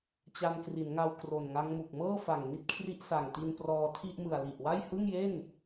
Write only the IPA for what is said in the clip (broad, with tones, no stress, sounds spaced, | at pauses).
t͡ɕ a˧ n k r i˩˦ n ŋ a˧ w k r o˨˩ n ŋ a˦˥ ŋ m u˨˩ k̚ m ɤː˥˩ f a˨˩ ŋ n i˦˥ t̚ kʰ r i˦˥ ʔ s a˨˩ ŋ t i˧ n p r ɔː˧ tʰ i˥˩ ʔ m ɯ˨˩ a̯ l i˨˩ ʔ w a˥˩ j h ɯ˥˩ ŋ j e˥˩ n